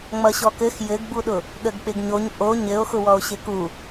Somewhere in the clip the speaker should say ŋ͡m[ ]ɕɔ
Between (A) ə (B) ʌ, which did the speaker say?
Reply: B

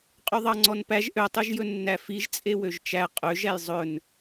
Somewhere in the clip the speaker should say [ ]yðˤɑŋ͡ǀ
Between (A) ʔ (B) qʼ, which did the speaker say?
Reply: B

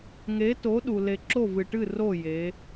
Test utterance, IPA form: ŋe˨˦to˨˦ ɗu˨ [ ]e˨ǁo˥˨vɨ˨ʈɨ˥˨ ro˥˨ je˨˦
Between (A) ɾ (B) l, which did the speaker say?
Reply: B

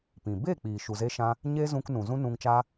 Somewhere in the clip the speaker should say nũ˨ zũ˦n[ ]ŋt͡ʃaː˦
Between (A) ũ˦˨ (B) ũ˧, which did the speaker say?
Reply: B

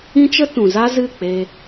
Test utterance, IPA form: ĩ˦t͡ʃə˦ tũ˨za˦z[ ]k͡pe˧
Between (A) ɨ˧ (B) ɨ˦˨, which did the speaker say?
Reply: B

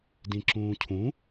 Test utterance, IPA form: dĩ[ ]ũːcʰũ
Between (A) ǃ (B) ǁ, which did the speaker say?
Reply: B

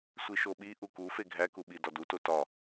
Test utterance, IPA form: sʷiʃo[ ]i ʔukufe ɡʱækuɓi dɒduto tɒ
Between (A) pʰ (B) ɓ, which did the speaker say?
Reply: B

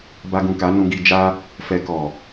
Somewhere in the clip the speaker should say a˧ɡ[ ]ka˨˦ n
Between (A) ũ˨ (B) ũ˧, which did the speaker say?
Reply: A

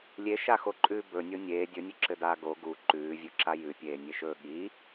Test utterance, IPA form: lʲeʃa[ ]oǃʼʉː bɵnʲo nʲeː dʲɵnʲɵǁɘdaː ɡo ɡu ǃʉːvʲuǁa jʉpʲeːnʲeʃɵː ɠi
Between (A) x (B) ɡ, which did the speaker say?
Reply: A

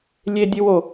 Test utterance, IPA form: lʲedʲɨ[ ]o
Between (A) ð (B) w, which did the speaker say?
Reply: B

